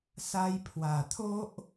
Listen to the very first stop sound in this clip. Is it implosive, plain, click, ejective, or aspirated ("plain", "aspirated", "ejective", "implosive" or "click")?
aspirated